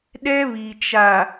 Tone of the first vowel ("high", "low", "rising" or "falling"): high